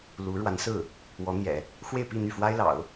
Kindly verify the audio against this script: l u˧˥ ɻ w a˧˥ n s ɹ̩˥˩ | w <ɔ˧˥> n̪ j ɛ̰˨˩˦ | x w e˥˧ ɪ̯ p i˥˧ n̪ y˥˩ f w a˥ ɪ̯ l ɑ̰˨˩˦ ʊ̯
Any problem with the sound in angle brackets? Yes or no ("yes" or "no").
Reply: no